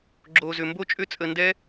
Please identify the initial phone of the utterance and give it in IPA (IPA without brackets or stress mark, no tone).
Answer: ɡ͡ǁ